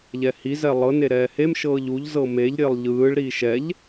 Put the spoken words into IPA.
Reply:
ʎ ɛ h i z ɛ lˠ ɤ n e ɾ ɛː h e m ʃ ɤː ʎ u ʎ z ɤ m e ʎ ɾʲ e lˠ ʎ ɯː ɭ ɾ iː ʃ ɛ ʎ

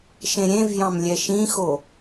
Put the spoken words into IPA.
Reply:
ʃ ẽ ɾʲ ẽ v j ɑ̃ m lʲ ɛ ʃ ĩ x o

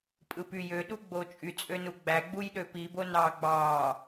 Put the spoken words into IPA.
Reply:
pʼ ɯ p y j ø ɗ u ɡ͡b o t͡ʃʼ y t͡sʼ ø n u ɡ͡b æ ɡ͡b u j ɗ ø p i b o n ɑː ɡ͡b ɑː

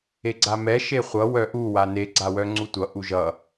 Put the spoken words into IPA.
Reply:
e ɡ͡ǀ a m ɛ ʃ e χʷ ʌ w œ ʔ u w a n e ɡ͡ǀ a w œ ŋ͡ǀ u tʷ ʌ ʔ u ʒ ʌ

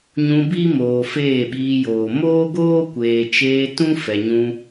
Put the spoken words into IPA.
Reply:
ɲ ũ˧ b i˦ m oː˨ f eː˦˨ ɓ iː˧ j oː˨ m oː˦ ɡ oː˦ kʷ eː˨ t͡ʃ eː˧ t ũ˦ f ɛ˨ ɲ ũ˧

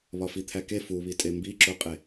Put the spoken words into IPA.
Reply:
β ɒ f i t̪ʰ æ k e f u β i tʼ e m b i ǁ o qʼ e

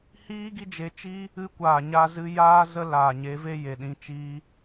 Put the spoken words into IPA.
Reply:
h iː˦ ɡ i˦ d͡ʒ e˧ t͡ʃ i˦ | ɨ˧ kʷ aː˨ ɲ a˧ z ɨ˧ j aː˦ z ə˦ l aː˨ ɲ e˨˦ v e˦ j e˨ ɗ ĩ˧ t͡ʃ iː˦

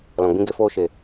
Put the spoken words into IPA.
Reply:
l ɔ̃˨ ɡ͡b ĩ˦ ɡ e˧ f oː˦ ʃ e˨

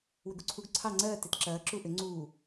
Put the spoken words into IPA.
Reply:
w ʏ ɡ u ǀʰ u ɡ ǀʰ ɑ ŋ͡ǀ ɜː t e t ǁ ɐː ǁ u ʔ ʏ ŋ͡ǀ uː

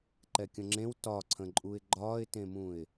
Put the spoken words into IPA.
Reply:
ǃ ɛ kʲ ə̃ ŋ͡ǁ ẽ w t ɒ ǀʰ ə̃ ǃʼ u ɪ̯ ɡ͡ǃ ɒː ɪ̯ t ẽ m ũ ɪ̯

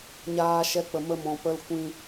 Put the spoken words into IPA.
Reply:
ɲ aː˦ ʃ ɛ˦ k͡p ə˧ m ə˦ m ɔ̃˧ p ə˧ l kʷ ĩ˧

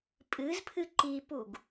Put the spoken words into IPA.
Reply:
pʼ ɨ z pʰ ɨ ǃ i p u ɡ

